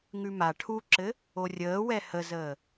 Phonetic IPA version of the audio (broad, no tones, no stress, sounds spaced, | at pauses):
ŋ ʉ m a ʈʰ u ǁ ɘ | o rʲ əː w ɛ h ə z əː